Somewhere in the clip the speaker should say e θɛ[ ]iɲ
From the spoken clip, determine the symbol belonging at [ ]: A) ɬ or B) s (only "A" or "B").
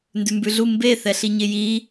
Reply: A